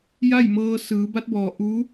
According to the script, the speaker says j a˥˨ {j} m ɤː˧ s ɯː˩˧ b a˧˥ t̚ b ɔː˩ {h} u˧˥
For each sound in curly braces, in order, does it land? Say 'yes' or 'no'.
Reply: yes, no

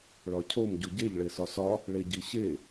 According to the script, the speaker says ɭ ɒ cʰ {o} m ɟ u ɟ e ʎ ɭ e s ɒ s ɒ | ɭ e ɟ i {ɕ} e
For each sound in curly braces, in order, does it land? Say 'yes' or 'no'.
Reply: yes, yes

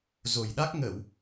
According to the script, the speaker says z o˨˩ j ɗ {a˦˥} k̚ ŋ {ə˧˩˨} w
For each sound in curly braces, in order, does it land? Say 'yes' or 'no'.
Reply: yes, yes

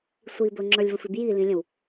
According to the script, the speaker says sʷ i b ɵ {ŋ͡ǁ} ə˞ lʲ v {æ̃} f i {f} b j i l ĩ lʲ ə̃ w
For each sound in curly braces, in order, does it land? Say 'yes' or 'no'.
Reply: yes, no, no

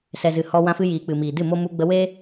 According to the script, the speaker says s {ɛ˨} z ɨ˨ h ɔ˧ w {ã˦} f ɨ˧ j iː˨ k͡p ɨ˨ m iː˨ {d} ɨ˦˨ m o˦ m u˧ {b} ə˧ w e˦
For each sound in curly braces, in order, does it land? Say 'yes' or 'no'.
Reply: yes, no, yes, no

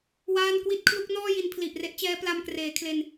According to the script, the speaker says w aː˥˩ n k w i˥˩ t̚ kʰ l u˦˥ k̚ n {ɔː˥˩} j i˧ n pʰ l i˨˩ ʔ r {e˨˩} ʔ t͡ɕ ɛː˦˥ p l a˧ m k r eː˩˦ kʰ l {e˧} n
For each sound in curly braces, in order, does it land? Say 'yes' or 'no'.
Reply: yes, no, yes

